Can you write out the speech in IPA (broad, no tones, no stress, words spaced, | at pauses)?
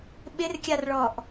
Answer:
ɓɪrkʲarɭɔʔ